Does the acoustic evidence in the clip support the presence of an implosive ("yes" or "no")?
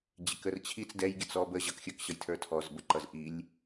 no